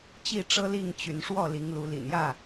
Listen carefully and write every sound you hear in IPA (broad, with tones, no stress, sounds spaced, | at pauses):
t͡ɕ i˥˨ ʈ͡ʂ ɤ˦ l i˥˨ ŋ t͡ɕ y˨˦ n ʂ w ɔ˥˨ l i˨˦ ŋ l u˨˦ l ḭ˨˩ n j ä˥˨